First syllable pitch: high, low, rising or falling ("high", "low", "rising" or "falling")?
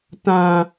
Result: high